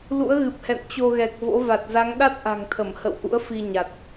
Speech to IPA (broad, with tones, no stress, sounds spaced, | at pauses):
l ṵ˧˥ ə̯ ɣ ɨ˨˩ p̚ h ɛ̰˧˨ n t͡ɕ o˧ ɣ ɛ˨˩ k̚ v o̰˧˥ v a˨˩ t̚ z a˨˦ ŋ ɗ a˦˥ t̚ ʔ a̤˨˩ ŋ t̪ʰ ə˧˩ m h ə̰˧˨ w ʔ ṵ˧˥ ə̯ f i˧ ɲ a˨˩ t̚